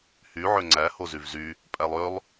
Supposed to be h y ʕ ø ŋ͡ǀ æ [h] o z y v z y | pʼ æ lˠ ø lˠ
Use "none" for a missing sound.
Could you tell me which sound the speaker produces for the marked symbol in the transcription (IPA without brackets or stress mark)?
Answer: h